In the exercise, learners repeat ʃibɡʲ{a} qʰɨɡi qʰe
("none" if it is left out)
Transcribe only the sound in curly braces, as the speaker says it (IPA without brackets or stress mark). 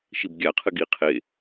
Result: a